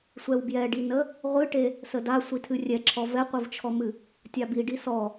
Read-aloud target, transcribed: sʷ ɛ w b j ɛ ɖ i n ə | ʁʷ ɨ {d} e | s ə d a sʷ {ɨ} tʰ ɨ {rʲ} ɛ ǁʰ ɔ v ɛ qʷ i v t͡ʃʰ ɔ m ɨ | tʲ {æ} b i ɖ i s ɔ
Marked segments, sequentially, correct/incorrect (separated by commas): incorrect, incorrect, correct, incorrect